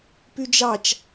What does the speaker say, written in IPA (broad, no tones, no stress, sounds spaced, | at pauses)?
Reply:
p y d͡ʒ ɑ t͡ʃ